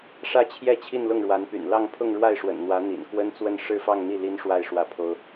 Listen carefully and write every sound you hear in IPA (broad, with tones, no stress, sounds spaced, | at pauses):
ʂ ä˥˧ t͡ɕʰ j ɛ˥˧ t͡ɕʰ i˥˧ n l ʊ˥˩ ŋ ɻ w a˧˥ n p y̰˨˩ n l ɑ˥˧ ŋ pʰ ʊ˥˧ ŋ ɻ w a˥˩ ɪ̯ ʂ w ə̰˨˩ n n̪ w ä˧˥ n̪ ḭ˨˩ n k w ə˥ n t͡s w ə˥˧ n ʂ ɻ̩˥˧ f ɑ˥˧ ŋ n̪ i˥˩ l i˥ n ʂ w a˥˧ ɪ̯ ʂ w ä˥˩ pʰ o˥ ʊ̯